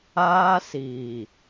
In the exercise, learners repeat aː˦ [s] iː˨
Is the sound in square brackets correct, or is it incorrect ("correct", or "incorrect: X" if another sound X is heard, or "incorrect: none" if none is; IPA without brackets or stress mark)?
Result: correct